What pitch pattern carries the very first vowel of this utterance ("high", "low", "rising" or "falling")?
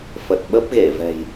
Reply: low